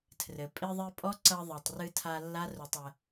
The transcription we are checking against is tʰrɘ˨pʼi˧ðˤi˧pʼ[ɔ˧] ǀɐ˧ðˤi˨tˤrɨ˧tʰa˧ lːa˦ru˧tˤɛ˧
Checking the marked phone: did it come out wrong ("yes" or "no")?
yes